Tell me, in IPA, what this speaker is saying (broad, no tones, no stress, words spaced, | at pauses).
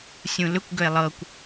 sʲũlʏkʷ ɡʏe̯lˠɤkʷ